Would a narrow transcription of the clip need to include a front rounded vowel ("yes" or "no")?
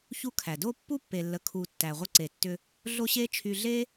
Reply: yes